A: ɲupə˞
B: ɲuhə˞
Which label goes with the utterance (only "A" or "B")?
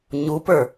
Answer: A